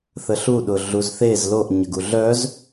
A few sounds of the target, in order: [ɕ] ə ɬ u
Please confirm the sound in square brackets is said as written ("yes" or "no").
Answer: no